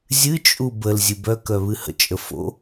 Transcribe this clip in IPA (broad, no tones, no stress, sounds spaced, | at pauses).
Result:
zʲ ɨ t͡ʃʼ u b ə l zʲ ɨ b œ k œ β ɨ h ə̰ t͡ʃʼ ə f o̰